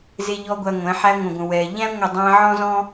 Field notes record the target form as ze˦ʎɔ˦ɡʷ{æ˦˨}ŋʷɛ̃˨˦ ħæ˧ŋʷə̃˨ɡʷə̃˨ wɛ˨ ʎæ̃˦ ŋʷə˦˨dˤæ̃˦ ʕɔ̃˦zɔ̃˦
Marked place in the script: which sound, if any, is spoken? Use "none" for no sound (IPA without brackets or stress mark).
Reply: æ˧